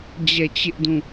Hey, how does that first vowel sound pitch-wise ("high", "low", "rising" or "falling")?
falling